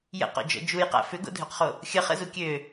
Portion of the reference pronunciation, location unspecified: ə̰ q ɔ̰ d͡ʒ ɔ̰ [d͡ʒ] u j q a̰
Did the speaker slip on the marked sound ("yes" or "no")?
no